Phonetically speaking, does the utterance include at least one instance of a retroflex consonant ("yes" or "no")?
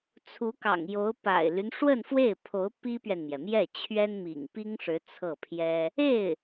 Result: yes